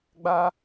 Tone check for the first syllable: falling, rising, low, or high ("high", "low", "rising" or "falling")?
high